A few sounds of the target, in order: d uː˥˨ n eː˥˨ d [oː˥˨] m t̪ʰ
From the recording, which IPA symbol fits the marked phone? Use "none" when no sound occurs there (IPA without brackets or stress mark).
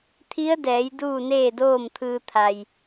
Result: oː˥˨